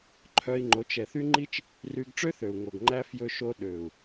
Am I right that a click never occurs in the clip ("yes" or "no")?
no